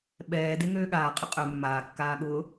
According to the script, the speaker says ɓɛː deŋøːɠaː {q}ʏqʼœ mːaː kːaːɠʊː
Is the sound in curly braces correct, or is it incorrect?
incorrect